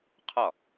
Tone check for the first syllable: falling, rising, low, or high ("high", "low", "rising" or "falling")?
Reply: falling